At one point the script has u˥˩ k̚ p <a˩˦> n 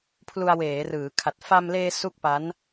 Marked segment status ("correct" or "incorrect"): incorrect